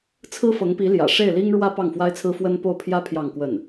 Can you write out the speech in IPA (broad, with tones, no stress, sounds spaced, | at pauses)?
t͡sʰ ɹ̩˥ f ɤ˧˥ ŋ p i˧˥ l j ä̰˨˩ ʂ e˥˩ ɪ̯ l i˥ ŋ ɻ w ä˥ p ɑ˥˩ ŋ f w a˥ ɪ̯ t͡sʰ ɹ̩˥ f w ə˥ n p o˥˩ ʊ̯ pʰ j ä˥ pʰ j ɑ˥˧ ŋ k w ə˥˩ n